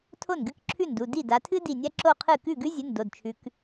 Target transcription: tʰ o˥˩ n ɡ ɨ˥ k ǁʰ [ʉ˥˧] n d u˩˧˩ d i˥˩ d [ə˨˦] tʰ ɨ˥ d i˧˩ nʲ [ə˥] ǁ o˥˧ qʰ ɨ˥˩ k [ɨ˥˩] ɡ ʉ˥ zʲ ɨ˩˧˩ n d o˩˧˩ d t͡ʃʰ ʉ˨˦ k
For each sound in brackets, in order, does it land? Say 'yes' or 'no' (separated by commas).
no, no, no, no